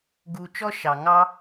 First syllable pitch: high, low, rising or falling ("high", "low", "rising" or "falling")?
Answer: low